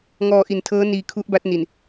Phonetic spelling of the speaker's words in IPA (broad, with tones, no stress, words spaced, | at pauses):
ŋɔː˧ʔi˨˩ntʰɤː˦˥ niː˧kʰu˦˥ʔba˦˥t̚ ni˨˩n